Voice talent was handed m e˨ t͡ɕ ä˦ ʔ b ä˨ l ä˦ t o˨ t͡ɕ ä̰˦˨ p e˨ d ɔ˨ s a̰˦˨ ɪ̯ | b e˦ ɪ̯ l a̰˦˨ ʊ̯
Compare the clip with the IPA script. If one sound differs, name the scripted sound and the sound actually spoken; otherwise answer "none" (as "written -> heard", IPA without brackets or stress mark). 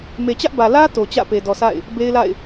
ʊ̯ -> ɪ̯